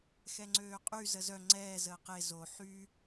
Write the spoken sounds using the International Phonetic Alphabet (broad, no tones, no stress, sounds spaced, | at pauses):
x ɛ ŋ͡ǀ øː qʼ y z ə z œ ŋ͡ǀ ɛː z əː q e z o ħ y